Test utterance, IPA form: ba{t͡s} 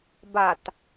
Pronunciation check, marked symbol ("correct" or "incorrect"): incorrect